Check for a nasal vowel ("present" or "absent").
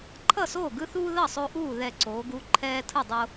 absent